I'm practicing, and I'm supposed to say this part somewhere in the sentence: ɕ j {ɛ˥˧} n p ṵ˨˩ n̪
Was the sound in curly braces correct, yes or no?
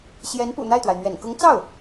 no